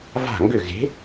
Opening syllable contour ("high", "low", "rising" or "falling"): falling